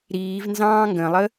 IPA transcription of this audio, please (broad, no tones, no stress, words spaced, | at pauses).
ɾiːvnzɑ̃ː ŋɡə̃lˠə